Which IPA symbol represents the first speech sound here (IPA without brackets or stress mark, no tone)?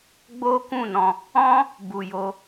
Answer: ɡ͡b